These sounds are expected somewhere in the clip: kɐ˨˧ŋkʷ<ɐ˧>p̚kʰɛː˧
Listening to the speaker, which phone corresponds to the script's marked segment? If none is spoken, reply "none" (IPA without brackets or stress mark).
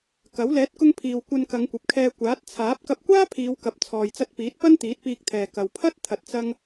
ɐ˨